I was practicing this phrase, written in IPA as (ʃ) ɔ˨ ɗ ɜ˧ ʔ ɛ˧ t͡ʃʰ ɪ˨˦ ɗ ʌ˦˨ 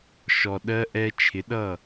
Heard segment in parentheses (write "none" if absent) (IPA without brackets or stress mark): ʃ